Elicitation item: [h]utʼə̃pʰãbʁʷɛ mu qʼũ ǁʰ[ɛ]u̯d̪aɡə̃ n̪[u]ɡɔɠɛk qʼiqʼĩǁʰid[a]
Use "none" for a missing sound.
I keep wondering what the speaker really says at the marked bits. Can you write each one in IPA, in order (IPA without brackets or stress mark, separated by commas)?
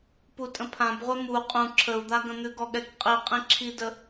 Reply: p, ə, ʉ, ə